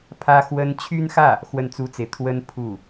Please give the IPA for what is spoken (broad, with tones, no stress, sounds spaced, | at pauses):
pʰ ä˥ x w ə˥ n t͡ɕʰ y˥ n x ä˥˩ | x w ə˥˩ n t͡s u˥ t͡s e˨ ɪ̯ t̪ʰ w ə˥ n pʰ u˥˩